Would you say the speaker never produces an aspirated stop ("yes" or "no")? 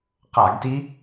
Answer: yes